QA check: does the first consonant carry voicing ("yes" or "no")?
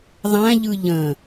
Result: yes